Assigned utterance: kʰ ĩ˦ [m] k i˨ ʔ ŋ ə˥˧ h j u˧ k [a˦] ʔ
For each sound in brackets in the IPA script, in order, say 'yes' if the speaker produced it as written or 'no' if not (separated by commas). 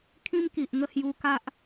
yes, yes